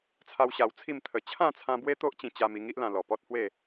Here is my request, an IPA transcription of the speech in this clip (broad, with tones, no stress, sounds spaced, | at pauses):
t͡sʰ a˦ w ɕ a˧ w t͡sʰ i˥˧ m t̪ʰ ə˨˩ t͡ɕʰ ã˥˧ t͡sʰ ã˦ b w e˦ t̪ o˦ ʔ t͡ɕ ĩ˧ t͡ɕ a˧ m i˥˧ ŋ i˦ ʔ l ã˧ l ɔ˨˩ p ɔ˦ t̚ h w e˥˧